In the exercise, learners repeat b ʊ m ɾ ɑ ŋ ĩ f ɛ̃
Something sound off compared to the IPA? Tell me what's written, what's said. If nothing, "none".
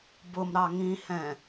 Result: f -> h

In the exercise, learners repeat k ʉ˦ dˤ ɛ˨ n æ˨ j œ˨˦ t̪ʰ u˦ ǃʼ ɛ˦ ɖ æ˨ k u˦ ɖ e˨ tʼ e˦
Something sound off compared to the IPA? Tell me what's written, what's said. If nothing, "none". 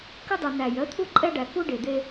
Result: tʼ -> d̪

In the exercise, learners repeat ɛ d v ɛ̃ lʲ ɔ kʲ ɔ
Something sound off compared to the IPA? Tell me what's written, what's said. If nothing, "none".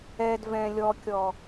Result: none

